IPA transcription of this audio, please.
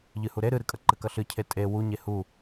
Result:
ʎ ɨ h u ɾ e ɾ ɨ ɾ ɨ kʼ ɐ ǃ ɘ k ɐ ɬ ɨ cʰ e tʼ e w u ɲ e h u

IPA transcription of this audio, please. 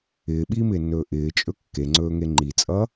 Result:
ɪː ɓ iː m ɪː nː ɵː ʔ ɪː t͡ʃʼ ɵ kː e ŋ͡ǀ ɵː ŋ e ŋ͡ǃ i t͡sʼ ʌ

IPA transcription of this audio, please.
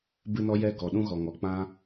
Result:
b ɨ˦ n ɔ˦ j ɛ˦ ɡ ɔ˨ ɗ ũ˦ ɣ ɔ˨ ŋ ɔ˨ k͡p ã˦

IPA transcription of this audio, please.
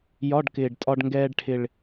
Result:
j ɒ˧˥˧ ɖ k ɪː˨˩ ɖ tʼ ɒ˧ ɖ ŋ ɡ ɛː˧ ɖ ʈʰ ɪ˨˩ ɭ

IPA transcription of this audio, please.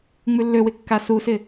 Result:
ŋ͡m ʉ lː ø w ɪ kː a s u s ɪ

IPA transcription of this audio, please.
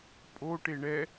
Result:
pʼ o ʈ e ɳ ɛ

